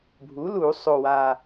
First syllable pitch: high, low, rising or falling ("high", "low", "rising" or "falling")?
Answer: rising